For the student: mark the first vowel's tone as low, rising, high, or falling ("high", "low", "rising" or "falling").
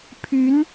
rising